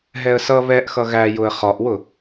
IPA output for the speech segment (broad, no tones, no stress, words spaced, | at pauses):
ɦɛə̯sʌ βɛʔxʌ ɣæjʊə̯ χɒʔwʊ